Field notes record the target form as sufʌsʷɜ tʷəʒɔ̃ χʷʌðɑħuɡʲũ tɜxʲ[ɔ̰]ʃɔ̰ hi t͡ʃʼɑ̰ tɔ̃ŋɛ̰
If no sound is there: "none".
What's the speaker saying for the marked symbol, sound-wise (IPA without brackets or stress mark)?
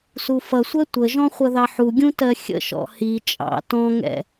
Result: ə̰